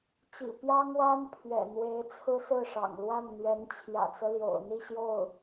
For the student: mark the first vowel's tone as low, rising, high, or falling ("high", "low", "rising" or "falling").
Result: low